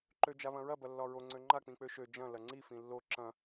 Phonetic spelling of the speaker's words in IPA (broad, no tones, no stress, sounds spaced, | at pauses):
ǃ ø d͡ʒ a β ɐ̃ ɹ ɐ b ɐ lː ɒ ɹ o ŋ͡ǀ ø ŋ͡ǃ a k͡p ĩ k͡p ø ʃ ø d͡ʒ ɐ̃ l ɐ ŋ͡ǀ i f ĩ lː o ǁ ɐ̃